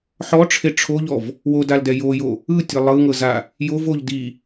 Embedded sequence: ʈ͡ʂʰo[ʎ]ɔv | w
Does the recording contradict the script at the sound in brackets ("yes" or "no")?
no